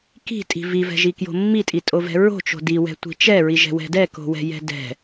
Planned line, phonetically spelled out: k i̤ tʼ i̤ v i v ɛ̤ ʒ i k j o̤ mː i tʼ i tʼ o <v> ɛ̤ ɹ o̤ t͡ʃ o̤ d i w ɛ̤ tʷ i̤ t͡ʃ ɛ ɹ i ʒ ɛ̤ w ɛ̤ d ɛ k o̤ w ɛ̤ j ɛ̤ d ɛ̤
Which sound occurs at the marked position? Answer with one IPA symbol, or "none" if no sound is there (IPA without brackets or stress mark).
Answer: v